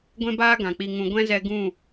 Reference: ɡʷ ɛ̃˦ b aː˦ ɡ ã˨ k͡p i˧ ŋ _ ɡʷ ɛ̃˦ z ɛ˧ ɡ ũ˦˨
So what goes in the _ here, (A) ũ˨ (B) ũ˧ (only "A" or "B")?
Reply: B